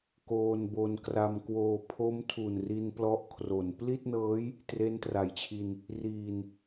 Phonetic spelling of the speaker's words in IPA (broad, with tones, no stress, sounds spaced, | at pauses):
k oː˧ n b o˧ n k r a˧ m k w oː˧ pʰ o˦˥ m tʰ u˨˩ n r i˧ n p l ɔ˦˥ ʔ kʰ r o˩˦ n p l i˥˩ t̚ n ɤː˦˥ j | t r e˦˥ n t r a˩˦ j t͡ɕʰ i˧ n | r iː˨˩ n